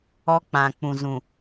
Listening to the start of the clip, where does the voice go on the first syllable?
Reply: high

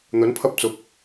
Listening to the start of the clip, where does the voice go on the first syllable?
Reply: rising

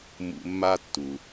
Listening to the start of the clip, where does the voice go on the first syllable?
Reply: high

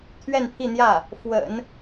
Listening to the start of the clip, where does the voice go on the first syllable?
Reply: falling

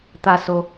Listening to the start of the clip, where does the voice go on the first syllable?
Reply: high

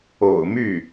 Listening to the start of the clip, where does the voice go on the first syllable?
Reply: low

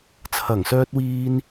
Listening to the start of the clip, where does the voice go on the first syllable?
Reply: low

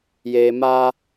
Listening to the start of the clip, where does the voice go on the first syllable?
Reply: low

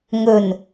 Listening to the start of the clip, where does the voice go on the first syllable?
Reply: low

